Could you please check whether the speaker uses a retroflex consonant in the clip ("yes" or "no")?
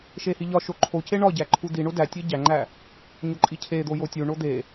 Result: yes